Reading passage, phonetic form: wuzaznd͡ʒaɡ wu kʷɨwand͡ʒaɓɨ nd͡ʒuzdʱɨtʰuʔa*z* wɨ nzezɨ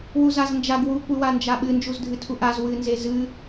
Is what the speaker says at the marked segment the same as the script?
yes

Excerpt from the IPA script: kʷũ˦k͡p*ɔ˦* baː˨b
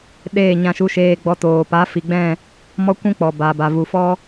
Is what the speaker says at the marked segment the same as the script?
no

